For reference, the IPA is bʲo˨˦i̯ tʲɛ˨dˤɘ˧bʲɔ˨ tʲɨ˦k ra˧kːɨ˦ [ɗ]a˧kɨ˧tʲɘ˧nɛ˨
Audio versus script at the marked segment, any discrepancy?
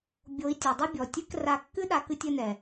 no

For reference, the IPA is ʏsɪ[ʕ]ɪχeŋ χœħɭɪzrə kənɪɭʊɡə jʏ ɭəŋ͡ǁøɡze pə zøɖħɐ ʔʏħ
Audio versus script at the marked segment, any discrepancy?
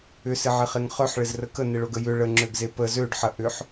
no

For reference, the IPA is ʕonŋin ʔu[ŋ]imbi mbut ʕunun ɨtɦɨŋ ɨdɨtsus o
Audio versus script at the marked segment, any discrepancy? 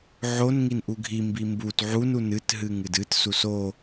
yes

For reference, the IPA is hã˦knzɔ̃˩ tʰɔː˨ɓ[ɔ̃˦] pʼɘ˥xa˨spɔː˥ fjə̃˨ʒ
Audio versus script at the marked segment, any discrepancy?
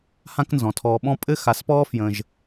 no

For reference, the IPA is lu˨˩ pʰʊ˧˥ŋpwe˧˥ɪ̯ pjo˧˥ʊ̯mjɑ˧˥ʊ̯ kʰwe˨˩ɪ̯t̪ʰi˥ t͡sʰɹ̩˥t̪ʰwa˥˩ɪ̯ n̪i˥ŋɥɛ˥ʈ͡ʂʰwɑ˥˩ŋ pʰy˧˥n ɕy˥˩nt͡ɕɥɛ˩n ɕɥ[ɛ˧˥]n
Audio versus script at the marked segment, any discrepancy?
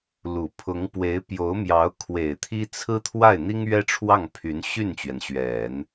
yes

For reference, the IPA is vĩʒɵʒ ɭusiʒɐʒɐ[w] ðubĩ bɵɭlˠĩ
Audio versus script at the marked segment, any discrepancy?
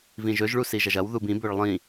no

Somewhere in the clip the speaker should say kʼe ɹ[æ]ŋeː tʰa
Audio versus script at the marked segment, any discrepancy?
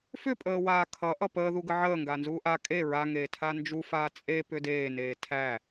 yes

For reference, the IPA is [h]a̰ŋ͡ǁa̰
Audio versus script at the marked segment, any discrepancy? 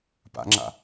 yes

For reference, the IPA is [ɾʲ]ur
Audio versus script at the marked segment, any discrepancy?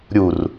no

